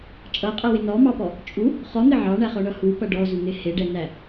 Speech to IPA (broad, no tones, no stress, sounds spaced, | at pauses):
t͡ʃʼ ʌ qʼ ʌ w ɪ n ɔ m ɑ p ɔ | t͡ʃʼ u | χ ɔ n̪ ɪ ʕ ɑ ɳ æ χ ɔ ɳ ʌ h u p ʌ ɖ ɔ z u n̪ ɪ h ɪ ɖ ɛ n æ